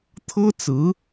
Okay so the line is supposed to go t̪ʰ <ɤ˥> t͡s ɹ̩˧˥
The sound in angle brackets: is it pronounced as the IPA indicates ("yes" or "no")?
yes